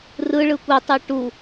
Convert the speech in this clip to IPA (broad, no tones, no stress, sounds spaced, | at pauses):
r ɯ ɭ ɯ kʷ i tˤ i ʈ u